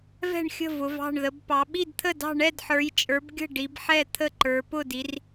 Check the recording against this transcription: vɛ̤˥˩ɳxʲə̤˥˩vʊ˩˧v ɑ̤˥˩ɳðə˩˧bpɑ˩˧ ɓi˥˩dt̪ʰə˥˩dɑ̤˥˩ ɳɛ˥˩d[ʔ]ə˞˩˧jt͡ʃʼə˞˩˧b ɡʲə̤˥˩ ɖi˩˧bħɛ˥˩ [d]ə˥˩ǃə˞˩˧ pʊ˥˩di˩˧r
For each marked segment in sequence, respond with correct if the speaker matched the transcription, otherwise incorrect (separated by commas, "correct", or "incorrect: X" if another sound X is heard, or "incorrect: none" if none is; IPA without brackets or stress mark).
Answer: incorrect: ħ, incorrect: t̪ʰ